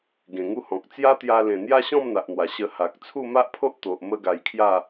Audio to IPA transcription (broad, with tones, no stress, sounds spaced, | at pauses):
ɡ ẽ˨˩ ŋ u˦ h ɔ̃˨ k̚ t͡s j a˦ t̪ j a˧ l ẽ˨˩ n̪ j a˦ ɕ ɔ̃˥˧ m n̪ a˨ ʔ n̪ w a˨˩ ɕ ə˧ h a˨ k̚ t͡sʰ u˥˧ m a˦ ʔ pʰ o˦ ʔ t̪ o˨ ʔ m ə˦ ɡ a˧ j kʰ j a˥˧